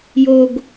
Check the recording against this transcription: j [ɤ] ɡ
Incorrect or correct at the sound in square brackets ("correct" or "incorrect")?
incorrect